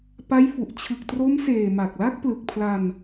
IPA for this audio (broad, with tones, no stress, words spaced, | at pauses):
pa˦˥jfu˨˩ʔ t͡ɕʰɯ˨˩k̚tro˦˥mseː˨˩ ma˨˩k̚la˦˥k̚ plɯ˨˩k̚pʰla˧n